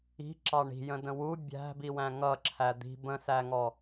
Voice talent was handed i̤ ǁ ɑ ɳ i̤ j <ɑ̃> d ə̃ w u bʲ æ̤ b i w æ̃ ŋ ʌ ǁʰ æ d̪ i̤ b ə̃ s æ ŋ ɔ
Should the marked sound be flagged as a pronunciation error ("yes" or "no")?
yes